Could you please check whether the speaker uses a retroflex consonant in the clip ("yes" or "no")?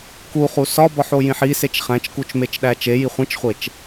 no